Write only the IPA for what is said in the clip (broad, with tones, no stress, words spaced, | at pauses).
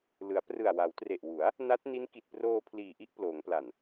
lɯ˩˦a̯prɯ˨˩a̯ wa˩˦wtre˨˩ʔwu˩˦a̯ | na˦˥t̚ni˦˥n ki˨˩t̚proː˧ pʰliː˨˩ʔi˥˩ʔ ploː˩˦ŋpla˨˩n